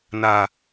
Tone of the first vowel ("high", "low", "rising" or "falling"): low